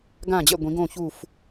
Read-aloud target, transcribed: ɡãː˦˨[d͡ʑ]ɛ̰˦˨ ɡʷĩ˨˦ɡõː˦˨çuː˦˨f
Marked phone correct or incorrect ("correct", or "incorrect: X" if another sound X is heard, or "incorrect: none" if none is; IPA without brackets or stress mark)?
correct